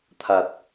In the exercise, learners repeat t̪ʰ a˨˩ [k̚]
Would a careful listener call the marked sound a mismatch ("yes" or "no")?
yes